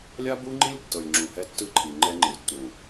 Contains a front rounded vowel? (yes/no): no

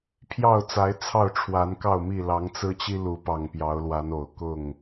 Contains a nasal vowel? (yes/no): no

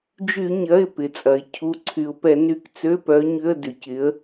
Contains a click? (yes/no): yes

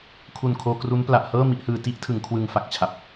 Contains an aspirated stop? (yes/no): yes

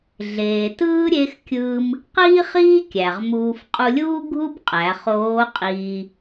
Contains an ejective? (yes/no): yes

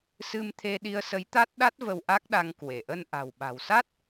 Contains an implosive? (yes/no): yes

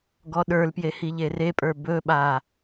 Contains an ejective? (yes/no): yes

